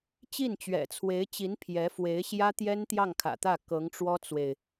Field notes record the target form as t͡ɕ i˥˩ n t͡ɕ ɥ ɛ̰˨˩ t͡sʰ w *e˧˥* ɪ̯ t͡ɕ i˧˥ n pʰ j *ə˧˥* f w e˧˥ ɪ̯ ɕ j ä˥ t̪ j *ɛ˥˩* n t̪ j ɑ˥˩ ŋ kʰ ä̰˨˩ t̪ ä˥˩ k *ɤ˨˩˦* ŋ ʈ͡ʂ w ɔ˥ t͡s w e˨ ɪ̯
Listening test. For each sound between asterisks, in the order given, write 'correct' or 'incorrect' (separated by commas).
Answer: correct, incorrect, incorrect, incorrect